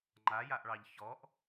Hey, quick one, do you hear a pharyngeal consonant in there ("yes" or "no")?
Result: no